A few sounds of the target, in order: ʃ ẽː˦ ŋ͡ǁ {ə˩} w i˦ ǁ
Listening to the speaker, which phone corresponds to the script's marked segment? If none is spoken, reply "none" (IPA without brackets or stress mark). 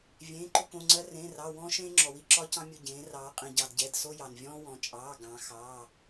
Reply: ɔ˩